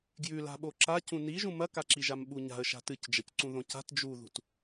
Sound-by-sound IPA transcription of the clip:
ɡjʉ la̤ɓoǁa cũniʒũ mɐkaǁiʒam ɓuɲa̤ə̯ ʃa̤tɨcd͡ʒɐc ǀũðõca̤t d͡ʒuðṳt

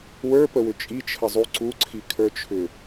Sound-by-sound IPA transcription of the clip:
wə˞pəwʏ t͡ʃʼit͡ʃʰəzˤu ǀuǀʰikʰə˞t͡ʃʰʏ

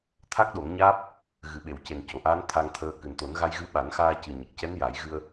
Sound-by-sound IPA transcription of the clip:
t̪ʰa˦˥k̚ɗo˨˩˦ŋɲaː˦˥p̚ | ɣɨ˨˩˨ɓe˨˩˨wce˨˩n co˨˩˨ʔaː˧˥n t̪ʰa˧ŋt̪ʰəː˧ kɨ˨˩nt̪o˨˩˦nɣa˧jɣɨ˧˥ ɓa˨˩˦nxaː˧cɨ˨˩ ɲə˨˩k̚cɛ˧˥n ja˨˩˦jɣɨ˧ə̯

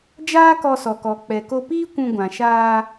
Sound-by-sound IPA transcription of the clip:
d͡ʒaː˦kɔ˧sɔ˨kɔ˨ k͡pɛ˨ko˧piː˦ kʷũ˧ɡʷã˨ ʃaː˧

